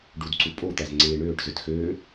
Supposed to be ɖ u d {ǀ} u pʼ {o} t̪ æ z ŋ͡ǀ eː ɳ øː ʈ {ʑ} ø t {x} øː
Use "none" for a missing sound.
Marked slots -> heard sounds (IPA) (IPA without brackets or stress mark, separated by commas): ǀ, o, z, x